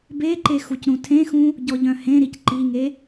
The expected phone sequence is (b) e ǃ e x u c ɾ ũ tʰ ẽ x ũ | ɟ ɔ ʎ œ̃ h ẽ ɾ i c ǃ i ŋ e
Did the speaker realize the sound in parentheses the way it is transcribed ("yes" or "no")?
yes